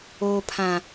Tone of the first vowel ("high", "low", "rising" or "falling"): low